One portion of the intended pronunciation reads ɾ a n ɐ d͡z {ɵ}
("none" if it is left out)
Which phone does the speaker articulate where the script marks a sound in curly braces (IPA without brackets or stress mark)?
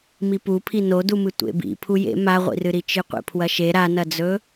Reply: ɵ